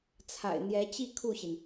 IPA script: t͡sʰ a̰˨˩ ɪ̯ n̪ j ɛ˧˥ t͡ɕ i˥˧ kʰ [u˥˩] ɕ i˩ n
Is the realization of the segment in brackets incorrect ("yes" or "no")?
no